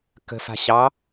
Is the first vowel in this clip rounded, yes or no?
no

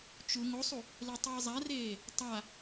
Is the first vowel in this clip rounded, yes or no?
yes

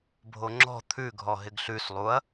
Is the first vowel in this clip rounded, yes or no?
yes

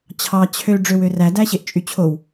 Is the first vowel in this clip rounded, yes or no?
no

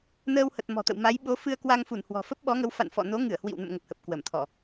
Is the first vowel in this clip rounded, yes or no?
no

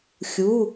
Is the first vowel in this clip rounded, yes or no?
yes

